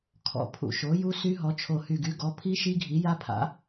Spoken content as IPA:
kʰ ɔ̰˧˩ pʰ ṵ˧˩ ʃ o˩˥ j u˦˥ s y˦˥ ɦ ɔ˩˥ t͡ʃʰ o˧˩ h y˧˩ ɡ y˩˥ ɡ ɔ˩˥ pʰ i˦˥ ʃ i˦˥ ɡʱ i˩˥ j a˦˥ pʰ a̰˩˥

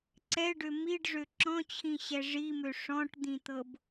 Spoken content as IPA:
ǀ ɛ ɖ ø m i ɖ ʐ ø ǁ ɔ̃ t͡ɕʰ ĩ ɕ ɛ ʐ i m ø ʂ ɔ̃ ʈ d̪ ĩ t̪ ɤ b

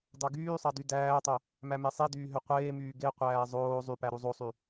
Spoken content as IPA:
d ɑ ɡ yː sˤ ɑ d y d æː tˤ o | m æ m e sˤ i d yː ɦ ø qʷ eː m yː ɡ e qʷ æː zˤ oː zˤ y p æ ɾ u zˤ o sˤ y

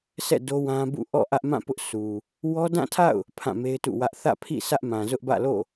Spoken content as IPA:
sʰ ɛ̰˦˨ d o˦ w ã˦ b ṵ˦˨ ʔ ɔ̰˦˨ ʔ ä˦ ʔ m ã˦˨ p ʊ˦ ʔ sʰ u˨ | w ɔ˦ d ã˦˨ tʰ a̰˦˨ ʊ̯ | pʰ ã˦˨ m e˦ ɪ̯ t ṵ˦˨ w ä˦ ʔ θ ä̰˦˨ pʰ ḭ˦˨ s ä˦ ʔ m ã˨ z ʊ˦ ʔ b ä̰˦˨ l o̰˦˨

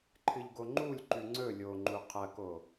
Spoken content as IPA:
ǃʰ ɨ ʎ ɡ o ŋ͡ǃ u lʲ ǃ ʉ ŋ͡ǀ ɵ lʲ o ŋ͡ǃ u qʰ ɐ k o

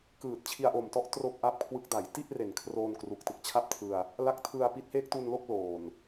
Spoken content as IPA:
k ɯː˨˩ t̚ t͡ɕʰ i˧ a̯ ʔ o˨˩ m t ɔ˥˩ ʔ t r o˥˩ k̚ ʔ a˥˩ p̚ kʰ w ɯ˦˥ k̚ d a˩˦ j t i˥˩ ʔ r e˨˩ n kʰ r oː˧ n k r u˨˩ k̚ t ɯ˦˥ k̚ t͡ɕʰ a˥˩ p̚ tʰ ɯ˧ a̯ | l a˦˥ k̚ tʰ ɯ˧ a̯ p i˦˥ t̚ h eː˦˥ k̚ t u˧ n l o˥˩ k̚ l oː˨˩ n

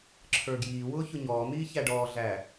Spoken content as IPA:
ǁʰ ə˞ ɡ j iː w ʊː ç ʊ ɲ ɔː n̪ iː ç æ ɖ ɔː ɮ æ

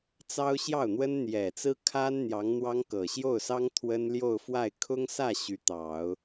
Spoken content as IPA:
t͡s ɑ˥ ʊ̯ ɕ j ɑ˥˩ ʊ̯ n̪ w ə˥ n n̪ j ɛ˨˩ t͡s ɹ̩˥ kʰ a˥ n n̪ j ɑ˧˥ ŋ n̪ w ɑ˥ ŋ k ɤ˨˩ ɕ j o˥˩ ʊ̯ s ɑ˥ ŋ t̪ʰ w ə˥ n l j o˥˧ ʊ̯ f w a˥˩ ɪ̯ kʰ ʊ˥ ŋ s ä˥˩ ɕ y˧˥ t̪ ɑ˨˩˦ ʊ̯

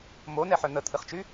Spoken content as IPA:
m o n ɛ ħ œ n̪ ə t̪ʰ ɨ χ t͡ʃ y

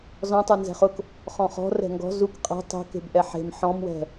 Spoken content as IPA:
z ɔ̃ tˤ u n z ɛ̤ χ ʊ k | χ ɔ̃ χ ɔ̤ r ɛ̤ ŋ ɡ ɔ̤ z u k qʼ ɛ̤ tˤ e̤ k e̤ b ʔ ɛ ħ e̤ m ħ ɔ̃ m w ɛ̤

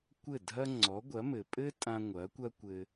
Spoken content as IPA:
kʷ ɘ˥˩ dʱ ɐ˥ ŋ͡ǀ ɔ˩˥ ɡʷ ɐ˩˥ m ɘ˩ pʼ ɘ˥ tʼ ã˧ ŋʷ ɐ˩˥ kʷ ɐ˥ kʷ ɘ˧

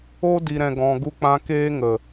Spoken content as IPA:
o˦ d i˨ ɾ ɛ̃˨ ɡ ɔ̃˨ ɡ u˧ k͡p ã˦ k eː˦ ŋ ə˨

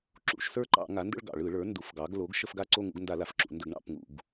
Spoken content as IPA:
ǁ ṵ˩˥ ʃ s ə˞˥˧ ǃ ɑ̰˧˩˧ ŋ a˩˥ n d ə̰˥˧ ɭ ɡ ɑ̰˧˩˧ ɭ ɯ˧˩˧ ɭ ə˞˩˥ n d u˩˥ f ɡ ɑ˩˥ ɡ l o˩˥ ɡ ʃ ə˥˧ f ɡ a˥˧ ǀ o˥˧ ŋ ṵ˩˥ ɡ n d a˧˩˧ l a˩˧ f ǁ ṵ˩˧ n d ə˧˩˧ ɡ ɳ ɑ̰˧˩˧ p ŋ ṵ˧˩˧ ɡ

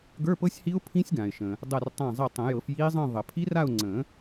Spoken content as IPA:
ɡ ə˞˧˥˧ p ɤ˦˥ sʲ h i˦˥ ʊ̯ pʰ ĩ˦˥ sʲ ɡ ã˩ ɪ̯ ʃ ə̃ː˩ | dˤ ɛ˧˩ r tˤ ã˧˩ zˤ i˧˩ tˤ ə̃˨˩˦ j ɤ˨˩˦ f j iː˦˥ zˤ ə̃ː˥˧ ðˤ ə˨˩˦ pʰ i˦˥ r a˥˧ ʊ̯ ŋ͡ǀ ə̃ː˨˩˦

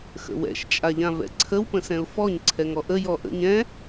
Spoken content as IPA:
x ə̰ w ɛ̰ ʃ t͡ʃʼ a ʎ ã v ɛ̰ ǀʰ ə w p ə̃ s ɛ̃ ʊ̯ f ɔ ɲ ǀʰ ɛ ŋ ɔ ʔ ə j ɔ ʔ ə̰ ɲ ɛ̃

